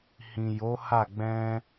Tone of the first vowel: low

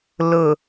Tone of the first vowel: low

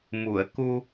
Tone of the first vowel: low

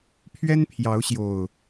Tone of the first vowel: high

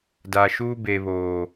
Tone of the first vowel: low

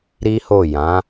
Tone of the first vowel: high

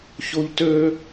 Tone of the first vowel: high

